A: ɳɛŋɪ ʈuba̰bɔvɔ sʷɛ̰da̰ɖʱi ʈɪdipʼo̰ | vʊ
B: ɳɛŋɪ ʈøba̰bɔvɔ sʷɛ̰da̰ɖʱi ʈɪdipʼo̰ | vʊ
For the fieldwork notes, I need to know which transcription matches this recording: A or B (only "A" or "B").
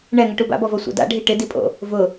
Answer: A